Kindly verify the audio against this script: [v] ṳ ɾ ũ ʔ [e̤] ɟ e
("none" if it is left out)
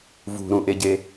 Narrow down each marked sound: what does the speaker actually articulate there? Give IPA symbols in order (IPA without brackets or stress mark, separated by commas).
v, e